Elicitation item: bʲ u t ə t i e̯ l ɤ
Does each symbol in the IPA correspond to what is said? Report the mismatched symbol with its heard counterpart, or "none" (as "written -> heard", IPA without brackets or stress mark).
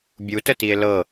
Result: none